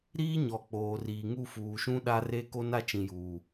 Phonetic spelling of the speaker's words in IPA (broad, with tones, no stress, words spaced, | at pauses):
ɾiː˦ɲɔ˨ k͡poː˨riː˨ ŋu˦˨fuː˨ʃũ˦ ɗa˦re˦ko˦n a˦t͡ʃĩ˨juː˨